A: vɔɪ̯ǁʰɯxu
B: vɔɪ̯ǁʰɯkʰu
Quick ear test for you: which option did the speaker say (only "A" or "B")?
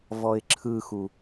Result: A